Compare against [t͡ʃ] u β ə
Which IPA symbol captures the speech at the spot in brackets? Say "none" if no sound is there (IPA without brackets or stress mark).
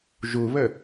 ʒ